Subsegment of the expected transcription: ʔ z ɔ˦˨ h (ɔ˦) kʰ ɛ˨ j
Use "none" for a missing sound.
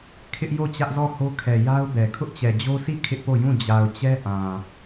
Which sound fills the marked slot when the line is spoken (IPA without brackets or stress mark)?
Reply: o˦